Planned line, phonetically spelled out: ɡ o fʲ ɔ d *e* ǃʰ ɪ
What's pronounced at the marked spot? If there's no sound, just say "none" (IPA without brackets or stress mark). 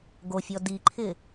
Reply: i